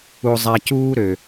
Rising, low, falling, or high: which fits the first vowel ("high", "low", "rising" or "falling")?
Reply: low